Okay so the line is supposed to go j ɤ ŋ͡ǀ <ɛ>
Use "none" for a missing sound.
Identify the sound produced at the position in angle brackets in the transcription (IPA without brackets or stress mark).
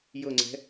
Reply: ɛ̤